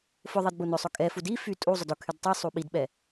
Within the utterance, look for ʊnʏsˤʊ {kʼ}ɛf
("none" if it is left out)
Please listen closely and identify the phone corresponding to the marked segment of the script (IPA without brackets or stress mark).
kʼ